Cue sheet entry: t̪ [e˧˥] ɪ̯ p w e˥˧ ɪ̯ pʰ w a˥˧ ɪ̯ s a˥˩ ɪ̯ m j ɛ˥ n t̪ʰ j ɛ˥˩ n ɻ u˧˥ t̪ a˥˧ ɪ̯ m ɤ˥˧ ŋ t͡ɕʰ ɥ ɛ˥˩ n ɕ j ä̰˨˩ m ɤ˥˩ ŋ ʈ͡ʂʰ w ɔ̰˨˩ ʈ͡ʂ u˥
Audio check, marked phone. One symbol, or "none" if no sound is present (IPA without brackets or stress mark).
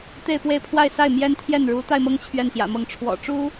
e˥˧